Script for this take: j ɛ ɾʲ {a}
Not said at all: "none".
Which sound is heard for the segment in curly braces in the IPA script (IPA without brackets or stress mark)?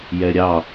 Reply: ɑ